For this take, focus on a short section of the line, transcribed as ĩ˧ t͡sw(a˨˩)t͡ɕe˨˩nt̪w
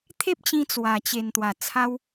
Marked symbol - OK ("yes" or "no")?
yes